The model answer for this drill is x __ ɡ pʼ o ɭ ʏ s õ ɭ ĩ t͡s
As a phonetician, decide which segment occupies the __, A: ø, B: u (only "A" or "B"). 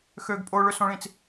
A